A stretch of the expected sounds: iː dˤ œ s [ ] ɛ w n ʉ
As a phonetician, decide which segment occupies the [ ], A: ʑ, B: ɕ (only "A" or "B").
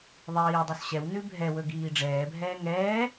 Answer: B